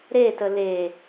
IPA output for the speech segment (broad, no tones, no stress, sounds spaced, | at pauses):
ɾ e t ə l e